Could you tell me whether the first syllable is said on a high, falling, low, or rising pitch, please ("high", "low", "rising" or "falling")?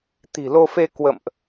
low